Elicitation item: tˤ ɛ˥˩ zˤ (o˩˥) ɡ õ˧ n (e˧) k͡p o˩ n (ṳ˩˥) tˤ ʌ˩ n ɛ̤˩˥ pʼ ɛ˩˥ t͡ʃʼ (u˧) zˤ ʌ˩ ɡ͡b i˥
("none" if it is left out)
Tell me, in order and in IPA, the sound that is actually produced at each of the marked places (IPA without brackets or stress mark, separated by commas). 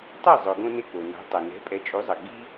o˩, e˧, o̤˩˥, u˩˥